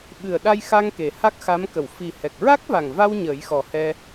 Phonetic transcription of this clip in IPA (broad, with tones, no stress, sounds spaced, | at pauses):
ɓ ɨ˨˩ ə̯ ɗ a˧ j x a˧ ŋ k e˨˩ h a˦˥ k̚ x a˧˥ m k ə˨˩˨ w f i˨˩ h ɛ˨˩ k̚ ɹ a˦˥ k̚ v a˨˩ ŋ v a˧ w ɲ əː˨˩˦ j x ɔ˨˩ h ɛ˧